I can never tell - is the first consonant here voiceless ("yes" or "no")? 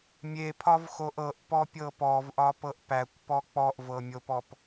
no